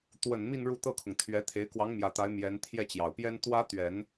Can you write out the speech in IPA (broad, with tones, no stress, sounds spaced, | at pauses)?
t̪ w ə˨˩ n m i˥˧ n ɻ u˥˧ t̪ ɤ˥˩ kʰ ʊ˩ ŋ t̪ʰ ɥ ɛ˧˥ t̪ʰ e˧˥ ɪ̯ k w ɑ˧˥ ŋ m j ä˨˩ t̪ a˧˥ ɪ̯ m j ɛ˧˥ n t̪ʰ j ɛ˥˩ t͡ɕ j ɑ˨˩ ʊ̯ p j ɛ˥ n t̪ w ä˥ t̪ ɥ ɛ˨˩˦ n